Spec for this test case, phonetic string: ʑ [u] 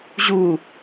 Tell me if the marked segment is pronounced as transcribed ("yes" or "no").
yes